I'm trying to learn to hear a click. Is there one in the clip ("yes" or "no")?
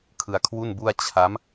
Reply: no